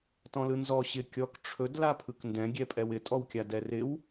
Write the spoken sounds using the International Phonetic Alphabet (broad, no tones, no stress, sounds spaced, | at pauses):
t ɔ̃ l ɯ n z ɔ ɕ ɪ kʲ ɔ k ʈ͡ʂʰ ɵ d l a pʰ ɯ k n d ɛ̃ ɡʲ ɛ pʼ ɛ w ɪ tʼ ɔ w kʲ a d ɛ r ɪ w